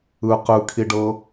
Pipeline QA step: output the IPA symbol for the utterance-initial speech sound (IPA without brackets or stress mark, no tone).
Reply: ɯ